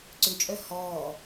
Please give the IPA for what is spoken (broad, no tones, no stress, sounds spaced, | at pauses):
ǀ ʏ t͡ʃʼ œ h ɔː